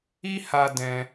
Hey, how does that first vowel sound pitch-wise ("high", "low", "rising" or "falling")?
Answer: high